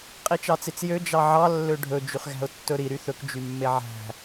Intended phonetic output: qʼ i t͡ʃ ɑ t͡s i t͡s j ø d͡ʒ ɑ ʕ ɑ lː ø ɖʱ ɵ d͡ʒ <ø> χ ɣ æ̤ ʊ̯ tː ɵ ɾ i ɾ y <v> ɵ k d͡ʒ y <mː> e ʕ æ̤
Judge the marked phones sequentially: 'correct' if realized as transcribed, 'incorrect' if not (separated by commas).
incorrect, incorrect, correct